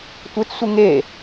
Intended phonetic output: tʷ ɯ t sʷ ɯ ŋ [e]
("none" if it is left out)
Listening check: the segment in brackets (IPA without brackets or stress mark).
e